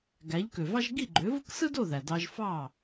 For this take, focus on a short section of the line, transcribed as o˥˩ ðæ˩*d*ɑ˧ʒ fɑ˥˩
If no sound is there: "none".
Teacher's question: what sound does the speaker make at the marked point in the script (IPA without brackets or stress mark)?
d